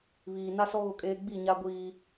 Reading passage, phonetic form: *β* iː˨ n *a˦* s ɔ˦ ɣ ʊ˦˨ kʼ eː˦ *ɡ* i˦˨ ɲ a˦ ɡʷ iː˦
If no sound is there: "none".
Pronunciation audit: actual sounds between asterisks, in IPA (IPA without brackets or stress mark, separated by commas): β, a˦, ɡ͡b